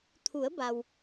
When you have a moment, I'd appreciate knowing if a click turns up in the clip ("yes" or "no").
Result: no